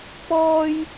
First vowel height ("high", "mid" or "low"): mid